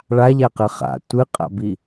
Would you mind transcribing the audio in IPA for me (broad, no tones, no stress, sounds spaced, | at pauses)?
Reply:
ɭ a ʎ a q ɨ χ a̰ tʷ ɨ qʼ a̰ b i